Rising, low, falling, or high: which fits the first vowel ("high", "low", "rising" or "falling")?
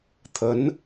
rising